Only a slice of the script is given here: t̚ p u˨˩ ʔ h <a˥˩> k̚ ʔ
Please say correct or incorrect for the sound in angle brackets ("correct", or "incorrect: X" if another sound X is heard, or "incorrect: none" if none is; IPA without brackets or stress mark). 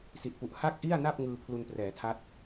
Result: correct